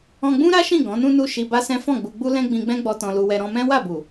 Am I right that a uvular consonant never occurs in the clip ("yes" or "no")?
yes